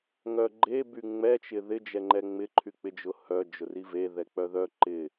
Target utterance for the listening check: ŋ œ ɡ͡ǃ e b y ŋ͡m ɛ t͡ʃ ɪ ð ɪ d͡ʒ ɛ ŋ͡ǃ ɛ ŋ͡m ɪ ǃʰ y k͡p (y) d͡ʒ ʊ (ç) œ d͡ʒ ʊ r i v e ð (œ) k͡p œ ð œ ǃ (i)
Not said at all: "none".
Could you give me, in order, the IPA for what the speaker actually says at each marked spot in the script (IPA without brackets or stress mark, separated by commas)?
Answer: ɪ, h, ɛ, ɪ